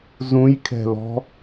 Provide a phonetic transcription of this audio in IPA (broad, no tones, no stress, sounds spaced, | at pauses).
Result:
z ũ j kʰ ɛ̤ l ɔ̤